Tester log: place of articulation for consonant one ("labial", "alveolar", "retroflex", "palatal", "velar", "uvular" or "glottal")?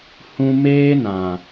glottal